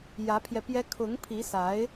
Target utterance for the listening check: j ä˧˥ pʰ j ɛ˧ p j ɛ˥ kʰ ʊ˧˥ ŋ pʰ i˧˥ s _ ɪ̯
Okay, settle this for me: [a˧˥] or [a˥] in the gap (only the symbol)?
a˧˥